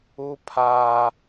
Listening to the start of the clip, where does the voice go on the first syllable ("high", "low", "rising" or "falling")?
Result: high